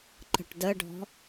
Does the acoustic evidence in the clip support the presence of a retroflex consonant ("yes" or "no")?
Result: yes